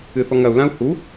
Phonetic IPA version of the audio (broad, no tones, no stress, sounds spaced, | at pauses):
ɨ θ ɔ ŋ ɐ u̯ l ã u̯ h u